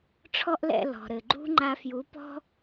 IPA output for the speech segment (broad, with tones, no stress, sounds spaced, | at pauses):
ʈ͡ʂʰ ɔ˦ ʔ l ɛ̰˧ l ɔ̤˨ ɾ ɘ˨ ɡ͡ǃ ṳ˦ ŋ͡ǃ a˧ f j u˨˦ p ɔ̤˦